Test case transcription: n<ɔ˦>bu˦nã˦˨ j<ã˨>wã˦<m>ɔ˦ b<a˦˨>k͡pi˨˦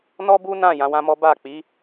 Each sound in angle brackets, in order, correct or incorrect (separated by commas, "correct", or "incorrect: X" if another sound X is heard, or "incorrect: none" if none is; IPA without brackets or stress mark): correct, incorrect: ã˨˦, correct, correct